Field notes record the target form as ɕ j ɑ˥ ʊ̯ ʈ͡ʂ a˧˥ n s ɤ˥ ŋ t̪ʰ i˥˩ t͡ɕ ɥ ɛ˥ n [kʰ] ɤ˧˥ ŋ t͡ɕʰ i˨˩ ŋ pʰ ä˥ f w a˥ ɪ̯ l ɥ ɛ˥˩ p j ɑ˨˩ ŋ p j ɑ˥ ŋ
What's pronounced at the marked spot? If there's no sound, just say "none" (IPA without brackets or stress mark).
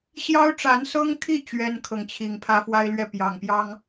kʰ